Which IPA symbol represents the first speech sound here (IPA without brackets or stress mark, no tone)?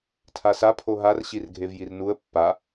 tʰ